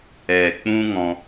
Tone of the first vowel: low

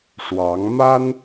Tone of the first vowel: rising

